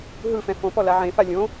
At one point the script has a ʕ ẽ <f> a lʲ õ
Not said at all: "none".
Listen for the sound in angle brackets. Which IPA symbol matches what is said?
f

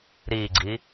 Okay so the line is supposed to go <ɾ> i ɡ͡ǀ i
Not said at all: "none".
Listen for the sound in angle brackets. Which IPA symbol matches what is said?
ɾ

